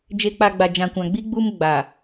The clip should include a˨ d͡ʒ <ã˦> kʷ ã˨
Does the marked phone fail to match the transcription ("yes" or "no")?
yes